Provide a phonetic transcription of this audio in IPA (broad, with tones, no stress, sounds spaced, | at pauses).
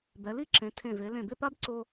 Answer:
b ɛ˩˧ l i˥˧ ǁ ẽ˩˧ tʰ ẽ˧˩ v e˩˧ l ẽ˧˩ b ɪ˥˧ p a˥ b ǀ o˧